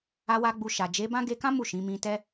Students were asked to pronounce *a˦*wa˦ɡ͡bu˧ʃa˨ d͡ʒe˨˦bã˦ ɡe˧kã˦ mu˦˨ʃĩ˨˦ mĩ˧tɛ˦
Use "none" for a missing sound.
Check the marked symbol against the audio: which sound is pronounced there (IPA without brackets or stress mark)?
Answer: a˦